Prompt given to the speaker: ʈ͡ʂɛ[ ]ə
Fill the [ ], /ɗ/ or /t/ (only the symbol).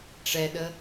ɗ